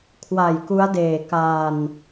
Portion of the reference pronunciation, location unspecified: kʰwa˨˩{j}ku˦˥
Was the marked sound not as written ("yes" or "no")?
no